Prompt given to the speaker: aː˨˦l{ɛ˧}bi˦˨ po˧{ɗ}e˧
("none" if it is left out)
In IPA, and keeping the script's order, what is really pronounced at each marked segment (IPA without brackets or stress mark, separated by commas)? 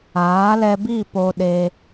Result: ɛ˧, ɗ